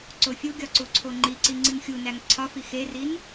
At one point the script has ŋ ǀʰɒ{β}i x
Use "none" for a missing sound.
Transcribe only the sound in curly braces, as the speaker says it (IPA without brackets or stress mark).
f